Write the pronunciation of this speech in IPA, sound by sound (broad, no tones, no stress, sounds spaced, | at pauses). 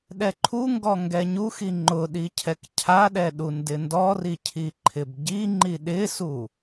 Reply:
ɗ ɛ ǃʰ u ŋ ɡ ɔ ŋ ɡ ɛ ɲ u x i ŋ͡ǃ ʊ ɗ i cʰ ɛ k cʰ a ɗ ɛ ɗ u n d ɪ n d ɔ r i cʰ i ǃʰ ɪ b ɟ i ŋ͡ǃ i ɗ ɪ s u